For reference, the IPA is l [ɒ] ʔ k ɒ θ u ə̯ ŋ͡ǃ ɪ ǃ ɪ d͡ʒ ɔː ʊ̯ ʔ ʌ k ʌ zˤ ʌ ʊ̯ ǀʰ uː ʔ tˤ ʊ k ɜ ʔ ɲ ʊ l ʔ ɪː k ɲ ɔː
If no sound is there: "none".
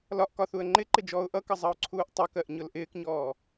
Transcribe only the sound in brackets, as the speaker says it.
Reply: ɒ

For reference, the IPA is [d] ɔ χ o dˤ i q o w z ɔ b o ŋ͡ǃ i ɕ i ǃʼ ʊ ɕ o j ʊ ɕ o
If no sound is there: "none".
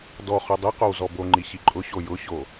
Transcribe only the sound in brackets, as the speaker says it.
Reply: d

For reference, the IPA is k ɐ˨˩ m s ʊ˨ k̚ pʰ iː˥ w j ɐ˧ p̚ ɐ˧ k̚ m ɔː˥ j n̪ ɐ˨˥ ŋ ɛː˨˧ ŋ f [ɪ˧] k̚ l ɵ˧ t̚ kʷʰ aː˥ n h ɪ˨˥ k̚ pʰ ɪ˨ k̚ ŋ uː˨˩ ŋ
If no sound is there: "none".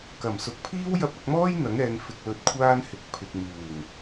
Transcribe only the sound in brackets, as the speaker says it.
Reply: ɪ˧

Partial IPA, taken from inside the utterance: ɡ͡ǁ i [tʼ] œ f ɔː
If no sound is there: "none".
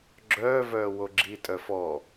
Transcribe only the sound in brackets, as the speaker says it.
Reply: tʼ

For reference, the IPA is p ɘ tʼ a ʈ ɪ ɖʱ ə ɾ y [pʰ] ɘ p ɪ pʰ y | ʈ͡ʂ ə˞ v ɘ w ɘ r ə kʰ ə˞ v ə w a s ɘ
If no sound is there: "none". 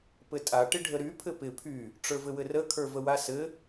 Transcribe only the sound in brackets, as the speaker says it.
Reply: pʰ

